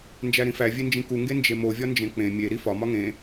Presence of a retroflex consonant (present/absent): absent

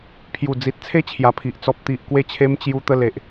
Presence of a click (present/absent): absent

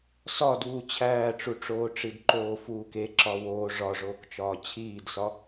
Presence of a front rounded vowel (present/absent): absent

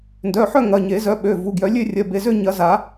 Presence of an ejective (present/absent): absent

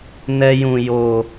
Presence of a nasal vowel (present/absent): present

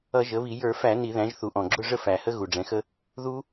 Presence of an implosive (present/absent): absent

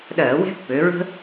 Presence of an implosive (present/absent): present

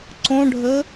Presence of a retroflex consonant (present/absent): present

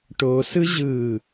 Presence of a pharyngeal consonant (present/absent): absent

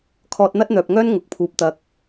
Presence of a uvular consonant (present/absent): absent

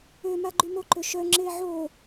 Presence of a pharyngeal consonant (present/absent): present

